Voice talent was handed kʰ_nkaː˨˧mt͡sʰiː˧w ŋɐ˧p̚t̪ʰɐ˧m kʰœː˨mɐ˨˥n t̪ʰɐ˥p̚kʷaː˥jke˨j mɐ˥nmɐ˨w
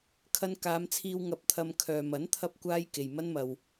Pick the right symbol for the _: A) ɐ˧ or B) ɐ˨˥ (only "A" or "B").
A